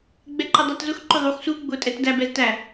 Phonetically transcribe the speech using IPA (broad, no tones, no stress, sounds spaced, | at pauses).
ɡ͡b ɛ ǃ ə dˤ æ t z ʊ x ǃ ʊ ðˤ u x s u ɡ͡b ʊ tʼ ɛ t d æ b ɛ z t æ